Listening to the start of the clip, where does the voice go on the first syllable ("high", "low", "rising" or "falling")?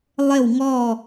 falling